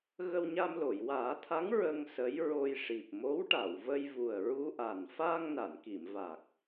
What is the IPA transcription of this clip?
ɣ ə˧ w ɲ a˧ m l o˨˩˨ j w aː˨˩˦ t̪ʰ a˧˥ ŋ ɹ ə˧ ŋ s ə˧˥ j ɹ o˧ j ʂ i˨˩ p̚ m o˧˥ w ʈ a˨˩˨ w v ə˧ j v u˨˩ ə̯ ɹ u˧ ʔ a˨˩ n f aː˧ ŋ n a˨˩˨ n k i˨˩˨ m v a˨˩ k̚

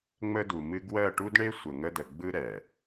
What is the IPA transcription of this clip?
ŋ͡m ə˦ d u˨ m ɨ˦ ɡ w ɜ˦˨ ʈ u˦ d ɳ e˦ sʷ ə˨ ŋ ə˦ d ə˨ ɡ͡b ɯ˦ ɾ ɛ˨

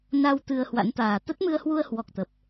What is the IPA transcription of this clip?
n a˧ w t̪ ɨ˧ ə̯ h w a̰˧˥ n t̪ aː˨˩ t̪ ə˦˥ t̚ m ɨ˧ ə̯ h w u˧ ə̯ h w ɔ˨˩ k̚ t̪ ə˨˩ p̚

